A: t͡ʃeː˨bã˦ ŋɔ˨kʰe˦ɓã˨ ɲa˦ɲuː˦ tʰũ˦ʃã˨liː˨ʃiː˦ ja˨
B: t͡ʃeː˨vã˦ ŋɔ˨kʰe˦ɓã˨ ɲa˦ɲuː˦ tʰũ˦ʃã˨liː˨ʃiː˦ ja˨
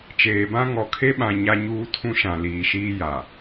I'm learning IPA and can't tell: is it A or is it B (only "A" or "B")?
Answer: A